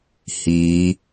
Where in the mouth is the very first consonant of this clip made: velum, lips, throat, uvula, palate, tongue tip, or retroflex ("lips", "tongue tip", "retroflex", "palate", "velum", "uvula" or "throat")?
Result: throat